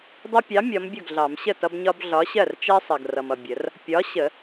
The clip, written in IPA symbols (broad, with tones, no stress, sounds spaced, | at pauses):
dˤ ʊ˦ pʲ ɑ˨˥ mʲ ɒ˨˥ m bʲ ʊ˥˩ ɡ ɮ ɑ˨˩˦ m ɕ ə˥˩ t ʌ˦ b ɲ ɒ˦ b ɮ ɒ˨˥ ɕ ɜ˥˩ r t͡ʃ ɜ˦ sˤ ɜ˨ ɡ r ʌ˨ m ʌ˨ bʲ ə˨˩˦ r | pʲ ɒ˨˥ ɕ ə˨˩˦